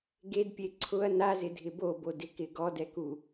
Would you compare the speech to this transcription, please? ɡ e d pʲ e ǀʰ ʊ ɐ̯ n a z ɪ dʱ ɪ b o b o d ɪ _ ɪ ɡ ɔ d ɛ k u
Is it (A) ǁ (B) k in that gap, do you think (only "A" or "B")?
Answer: B